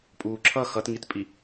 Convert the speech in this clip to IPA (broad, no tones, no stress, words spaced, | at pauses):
pʼuːǁʰʌ xʌtŋitpʼi